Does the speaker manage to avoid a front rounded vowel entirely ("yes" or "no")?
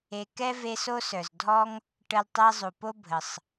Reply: no